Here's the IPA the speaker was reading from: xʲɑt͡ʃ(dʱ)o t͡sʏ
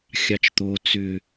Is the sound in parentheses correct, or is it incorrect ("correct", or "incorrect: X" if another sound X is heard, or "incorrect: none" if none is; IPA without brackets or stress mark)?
incorrect: t̪